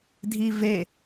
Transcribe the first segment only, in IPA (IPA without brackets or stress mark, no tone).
dʱ